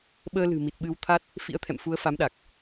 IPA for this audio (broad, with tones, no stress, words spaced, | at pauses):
ɓəː˧lɨ̤˨˩ mi˨˩t̚ɓɨ˨˦wt̪ʰa˦˥t̚ | fḭ˧˥ə̯t̪ʰɛ̰˧˨m fu˨˦ə̯fa˨˦mɗa˨˩k̚